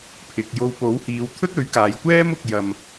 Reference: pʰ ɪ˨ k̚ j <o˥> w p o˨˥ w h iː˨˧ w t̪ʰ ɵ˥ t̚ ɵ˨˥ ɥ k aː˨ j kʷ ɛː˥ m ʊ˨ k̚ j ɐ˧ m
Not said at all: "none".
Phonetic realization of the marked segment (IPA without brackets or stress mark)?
o˧